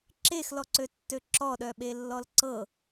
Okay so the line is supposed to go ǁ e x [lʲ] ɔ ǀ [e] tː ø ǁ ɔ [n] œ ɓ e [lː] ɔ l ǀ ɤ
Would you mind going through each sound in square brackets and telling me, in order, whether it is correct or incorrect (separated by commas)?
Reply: incorrect, incorrect, incorrect, correct